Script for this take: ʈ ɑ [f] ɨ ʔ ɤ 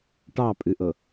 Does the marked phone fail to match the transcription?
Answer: yes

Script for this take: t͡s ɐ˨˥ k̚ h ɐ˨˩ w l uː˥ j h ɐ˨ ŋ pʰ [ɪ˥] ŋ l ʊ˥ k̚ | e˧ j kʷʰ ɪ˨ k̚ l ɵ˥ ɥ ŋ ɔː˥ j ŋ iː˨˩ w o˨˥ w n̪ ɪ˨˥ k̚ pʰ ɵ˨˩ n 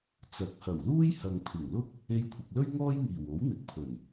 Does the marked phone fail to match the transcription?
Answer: yes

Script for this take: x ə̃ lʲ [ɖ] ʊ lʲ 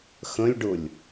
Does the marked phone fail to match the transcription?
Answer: no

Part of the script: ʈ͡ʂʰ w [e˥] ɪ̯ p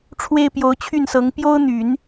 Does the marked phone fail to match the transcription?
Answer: no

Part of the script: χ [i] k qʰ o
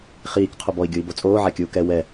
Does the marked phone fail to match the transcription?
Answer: yes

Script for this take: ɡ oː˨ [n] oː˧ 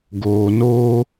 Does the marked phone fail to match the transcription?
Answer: no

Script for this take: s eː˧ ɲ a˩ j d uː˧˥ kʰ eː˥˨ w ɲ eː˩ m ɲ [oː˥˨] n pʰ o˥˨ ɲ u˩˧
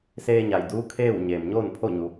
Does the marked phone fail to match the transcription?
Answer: no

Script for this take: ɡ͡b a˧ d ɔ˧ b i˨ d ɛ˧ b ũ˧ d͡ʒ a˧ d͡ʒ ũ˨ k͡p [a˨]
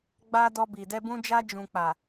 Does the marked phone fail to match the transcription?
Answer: no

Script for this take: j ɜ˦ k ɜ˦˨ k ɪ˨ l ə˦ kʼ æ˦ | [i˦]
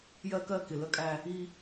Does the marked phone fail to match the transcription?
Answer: no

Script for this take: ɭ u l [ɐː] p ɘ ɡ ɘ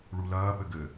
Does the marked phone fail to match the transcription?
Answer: no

